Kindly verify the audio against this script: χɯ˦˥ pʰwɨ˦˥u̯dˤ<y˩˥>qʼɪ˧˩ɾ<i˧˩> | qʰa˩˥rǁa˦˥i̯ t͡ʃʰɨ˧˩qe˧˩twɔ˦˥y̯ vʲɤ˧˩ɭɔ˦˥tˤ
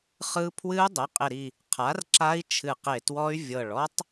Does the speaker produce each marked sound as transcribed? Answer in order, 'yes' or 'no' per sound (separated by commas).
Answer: no, yes